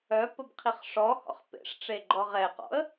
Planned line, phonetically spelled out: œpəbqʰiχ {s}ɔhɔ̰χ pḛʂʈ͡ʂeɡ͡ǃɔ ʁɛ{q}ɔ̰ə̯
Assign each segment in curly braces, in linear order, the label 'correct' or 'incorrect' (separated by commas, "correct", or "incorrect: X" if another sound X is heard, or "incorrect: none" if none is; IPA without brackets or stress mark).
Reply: incorrect: ʂ, correct